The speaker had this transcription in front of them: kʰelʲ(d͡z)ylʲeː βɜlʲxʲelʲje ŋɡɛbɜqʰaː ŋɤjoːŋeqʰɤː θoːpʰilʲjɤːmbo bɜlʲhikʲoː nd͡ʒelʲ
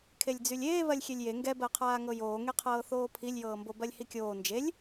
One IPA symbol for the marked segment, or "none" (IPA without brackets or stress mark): d͡z